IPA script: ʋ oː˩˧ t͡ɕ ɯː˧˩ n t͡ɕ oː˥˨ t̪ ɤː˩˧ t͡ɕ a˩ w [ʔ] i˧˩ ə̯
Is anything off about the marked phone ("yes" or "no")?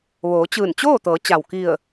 yes